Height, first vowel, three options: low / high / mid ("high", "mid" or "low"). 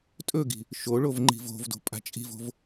mid